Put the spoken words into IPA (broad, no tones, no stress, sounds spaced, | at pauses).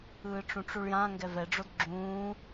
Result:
ɯː ʈ͡ʂ ũ ʈ͡ʂ u ɭ j ã ŋ ɡ ɛ v ɛ ɖ͡ʐ o d ɡ͡ǁ ũː